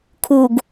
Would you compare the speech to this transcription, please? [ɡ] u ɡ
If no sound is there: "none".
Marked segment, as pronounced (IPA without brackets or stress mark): kʰ